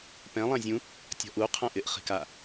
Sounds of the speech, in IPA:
p ɛ̃ lˠ ã zʲ ũ | tʲ ɔ̤ ʔ u qʰ ã ʔ ɪ ʔ χ i̤ k a

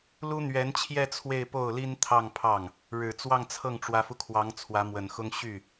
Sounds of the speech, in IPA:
l u˥ n̪ ɥ ɛ˧˥ n t͡ɕʰ j ɛ˥˧ t͡sʰ w e˥˧ ɪ̯ p o˥˩ ʊ̯ l i˥ n t̪ʰ ɑ˥˧ ŋ pʰ ɑ˥˩ ŋ | ɻ ɻ̩˨˩ t͡s w ɑ˥˧ ŋ t͡sʰ ɤ˥˩ ŋ ʈ͡ʂ w ä˧˥ f u˧ kʰ w ɑ˧˥ ŋ t͡sʰ w ä˧˥ m w ə˨˩ n x ʊ˥ ŋ ɕ y˥˩

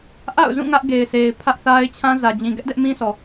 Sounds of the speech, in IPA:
ʔ a̰˦˨ ʊ̯ z ũ˦˨ ŋ ä˦ ʔ ɡ e˨ ɪ̯ s e˨ ɪ̯ pʰ ä˦ ʔ θ a˦ ɪ̯ t͡ɕʰ ã˦ z ä˨ d͡ʑ ĩ˨ ɡ ɛ˦ ʔ d ɛ˦ ʔ m ĩ˦ s ɔ˨

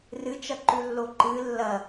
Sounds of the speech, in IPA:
r ɨ t͡ʃ ɐ ǃ ʉ lː o ǃ ɨ lː ɐ

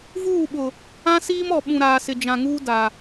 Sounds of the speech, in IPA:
v uː˦˨ ɓ ʊ˨ | ã˦ s iː˦ m ɔ˨ ɓ ũ˨ ɾ aː˨ s ɪ˨ d͡ʒ ã˨ ŋ uː˦ d a˨

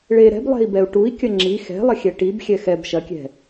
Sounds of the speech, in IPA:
ɭ e ɾ ɛ̤ b lˠ ɛ̤ i̯ b ɛ u̯ ʈ u i̯ kʲ ɐ ŋ͡ǁ i x ɛ̤ lˠ ɐ xʲ ɛ ʈ i b xʲ ɛ x ɛ b ʃ ɐ kʲ ɛ̤

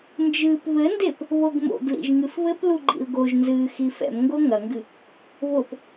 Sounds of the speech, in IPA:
n d͡ʒ ɨː p β ɘ n d e p | β o ɡ m o̰ ɡ l ḭ ʒ ŋ ɨ f β ɘ p l u ɡ͡ǃ ḭ l ɡ o ʒ n z ɨː x i f ɛ̰ m ŋ ɡ o ŋ ɐ ŋ ɡ ɨ | β o p

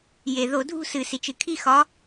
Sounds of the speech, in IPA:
j e˩ ð o˧˩˧ dʱ ṳ˥˨ s ɨ˧˩˧ s i˩ t͡ʃ ɨ˩ kʰ i˥˨ x ɒ˨˥

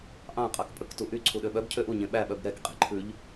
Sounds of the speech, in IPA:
ʔ ɑ̃ qʼ ɑ k pʼ ɵ k t u ʔ y ǀʰ u ɗ ø ɓ œ b cʰ ø ʔ u ɲ ẽ ɓ æ ɓ œ b ɾ ɛ k qʼ e̤ ǃʰ ʉ ʎ

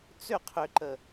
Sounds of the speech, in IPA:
t͡s ʏ qʰ ʏ ǃ ə

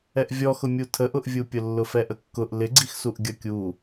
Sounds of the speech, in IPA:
ɛ ʔ vʲ ɔ x ʊ mʲ u tʰ ə ʔ ʊ ʔ vʲ u pʲ ʊ lː ʊ f ɛ ʔ ə kː ʊ ʔ l ɪ ɡ͡ǀ i x s u ʔ ɡʲ ʌ kʲ u

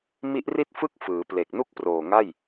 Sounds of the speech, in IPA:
m i˦˥ ʔ r i˥˩ t̚ f ɯ˥˩ k̚ f ɯː˩˦ p l e˨˩ k̚ n u˥˩ k̚ p r oː˨˩ ŋ a˥˩ j

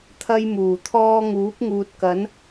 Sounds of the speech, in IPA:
t̪ʰ ɐ˥ j m uː˨˩ t̪ʰ ɔː˥ ŋ uː˨˥ p̚ ŋ uː˨ t̚ k ɐ˨˥ n

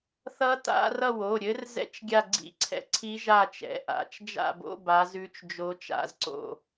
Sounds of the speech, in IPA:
θ ʌ˧˥ t a̰˧˥˧ r ʌ˦˨ w o˩˧˩ ɾʲ ɘ˧˥ r z ɛ̰˧˥˧ t͡ʃ ɡʲ a˦˨ ɡ͡ǀ ḭ˦˨ ǀʰ ɛ̰˧˥ ǀʰ i˧˥ ʒ a˦˨ t͡ʃ ɛ̰˩˧˩ ʔ a̰˩˧˩ t͡ʃ d͡ʒ a̰˦˨ b o̰˧˥˧ b a˧˥ z ʉ˧˥ t͡ʃ d͡ʒ o˧˥ t͡ʃ a̰˦˨ z ǀ o̰˦˨

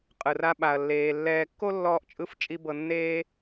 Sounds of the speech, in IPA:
qʼ ɯ˨ r a˧ ɓ a˨ ɐ̯ lː eː˨ lː ɛː˧ kː o˦ lː ɔː˧ ʔ t͡ʃʼ ɯ˧ f t͡ʃʼ i˧ b ɤ˧ nː eː˦

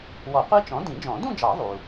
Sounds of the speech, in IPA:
w ɔ˨˩˦ qʷ i˦˥ t͡ʃ ɔ̃˩˥ d ĩ˨˩˦ d͡ʒ ɔ̃˨˩˦ d ũ˥˧ d͡ʒ ɑ˨˩˦ ðˤ u˩

